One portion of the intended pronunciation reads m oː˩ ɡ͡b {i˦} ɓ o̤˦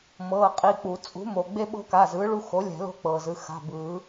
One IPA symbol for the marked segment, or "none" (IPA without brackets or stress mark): e˦